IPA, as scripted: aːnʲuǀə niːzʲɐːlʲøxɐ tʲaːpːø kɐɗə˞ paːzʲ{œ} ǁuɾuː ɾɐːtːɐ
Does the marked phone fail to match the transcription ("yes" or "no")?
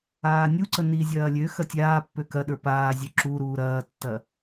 no